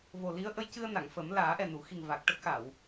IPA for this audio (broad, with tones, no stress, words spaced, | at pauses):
vo˨˩ li˧˥ə̯ʔə˧˥jcɨ˧ə̯ na˨˩˨ŋfə˨˩˦m laː˨˩˦ʔɛ˨˩nu˨˩˨xi˨˩ŋ va˨˩k̚ʈə˦˥k̚xa˨˩˨w